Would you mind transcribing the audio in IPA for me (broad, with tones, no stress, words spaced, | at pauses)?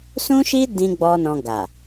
sũ˦ʃi˦ dĩ˧ ɡ͡bɔ˦nɔ̃˧ ɡa˨